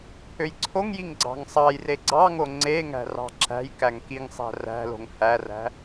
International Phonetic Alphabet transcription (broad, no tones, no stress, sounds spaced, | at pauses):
pʰ ø j ǀʰ o ŋ j i ŋ ɡ͡ǀ ɑ̤ ŋ sˤ ɑ j r e ɡ͡ǀ ɑ ŋ o ŋ͡ǀ e ŋ æ̤ r ɑ̤ ǁ æ̤ j k æ ŋ k i ŋ sˤ æ̤ r æ̤ l o̤ ŋ h æ r æ̤